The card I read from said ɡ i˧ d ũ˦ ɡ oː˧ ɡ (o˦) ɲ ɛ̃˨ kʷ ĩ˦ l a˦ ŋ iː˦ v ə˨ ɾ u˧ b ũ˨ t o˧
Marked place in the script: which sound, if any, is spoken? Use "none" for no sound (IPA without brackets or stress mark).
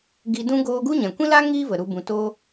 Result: u˦